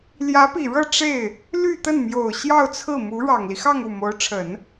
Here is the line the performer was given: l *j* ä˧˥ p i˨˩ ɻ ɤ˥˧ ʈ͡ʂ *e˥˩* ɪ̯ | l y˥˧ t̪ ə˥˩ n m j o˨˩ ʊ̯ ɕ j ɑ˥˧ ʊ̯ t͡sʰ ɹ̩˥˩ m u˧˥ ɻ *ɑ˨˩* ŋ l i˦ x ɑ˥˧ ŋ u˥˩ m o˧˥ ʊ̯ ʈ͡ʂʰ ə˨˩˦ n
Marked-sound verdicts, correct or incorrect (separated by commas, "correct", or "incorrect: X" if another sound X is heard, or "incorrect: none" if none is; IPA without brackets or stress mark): correct, correct, correct